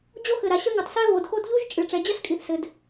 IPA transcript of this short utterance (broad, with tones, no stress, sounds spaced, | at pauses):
d͡ʑ o˥ x ɘ˩ ɾ a˩ ɕ ɐ˥ ŋ ɐ˩ tˤ s ɛ˥ β o˩ d x o˥ d ʎ u˥ ʒ t͡ʃʼ ɨ˩ ʈ͡ʂ ɛ˩ d͡ʑ ɐ˥ s kʼ i˩ θ s ɘ˩ d